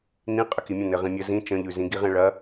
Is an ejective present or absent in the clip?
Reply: present